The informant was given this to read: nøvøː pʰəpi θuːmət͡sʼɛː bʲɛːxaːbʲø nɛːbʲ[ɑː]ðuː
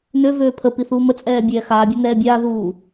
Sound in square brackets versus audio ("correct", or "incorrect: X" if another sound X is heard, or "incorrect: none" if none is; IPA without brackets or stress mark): incorrect: aː